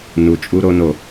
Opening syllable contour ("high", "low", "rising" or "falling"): low